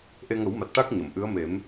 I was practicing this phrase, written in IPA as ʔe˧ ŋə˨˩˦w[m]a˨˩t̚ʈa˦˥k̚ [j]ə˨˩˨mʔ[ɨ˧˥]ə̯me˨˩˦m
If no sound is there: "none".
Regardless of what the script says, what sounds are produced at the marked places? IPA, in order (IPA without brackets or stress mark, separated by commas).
m, ɲ, ɨ˧˥